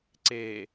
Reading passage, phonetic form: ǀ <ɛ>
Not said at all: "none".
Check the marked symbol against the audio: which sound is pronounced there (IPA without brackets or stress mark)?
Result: e